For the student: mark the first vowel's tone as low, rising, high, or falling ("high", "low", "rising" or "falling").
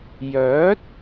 rising